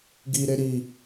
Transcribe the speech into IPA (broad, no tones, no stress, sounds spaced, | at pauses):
ɡ i ɾ e ɾ i